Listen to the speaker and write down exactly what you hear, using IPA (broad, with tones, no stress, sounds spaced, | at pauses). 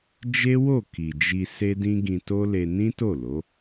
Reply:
d͡ʒ e˦ w o˦˨ k i˨ d͡ʒ i˧ s e˦ d ĩ˦ ɡ ĩ˧ t o˦ l e˧ n ĩ˦ t o˦˨ l o˨˦